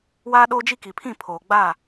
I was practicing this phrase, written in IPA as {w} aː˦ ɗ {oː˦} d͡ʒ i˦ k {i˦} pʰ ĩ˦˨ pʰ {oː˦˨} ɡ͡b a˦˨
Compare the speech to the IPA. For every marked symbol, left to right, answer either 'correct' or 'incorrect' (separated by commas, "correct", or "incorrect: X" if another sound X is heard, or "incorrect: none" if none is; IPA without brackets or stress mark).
correct, correct, incorrect: i˨, incorrect: oː˨